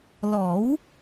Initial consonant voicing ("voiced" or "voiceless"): voiced